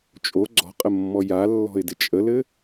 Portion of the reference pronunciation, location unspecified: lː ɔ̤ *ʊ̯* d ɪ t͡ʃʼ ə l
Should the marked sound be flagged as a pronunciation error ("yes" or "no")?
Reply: yes